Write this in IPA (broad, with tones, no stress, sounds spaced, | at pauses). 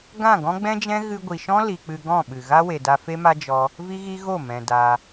ɡ ã˦˨ ɡ ɔ̃˦ ɡ͡b ɛ̃˦ d͡ʒ ɛ̃˦ ɣ ɨ˧ ɡʷ i˨ ʃ ɔ̃˦ l i˨ k͡p ɨ˧ ɡ ɔ̃˦˨ ɓ ɨ˨ ɣ a˦ w e˨ d a˧ f e˦ m a˦ d͡ʒ ɔ˦ | v i˦ ɣ i˦ ɣ o˦˨ m ɛ̃˨ d a˧